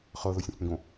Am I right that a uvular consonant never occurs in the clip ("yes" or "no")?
no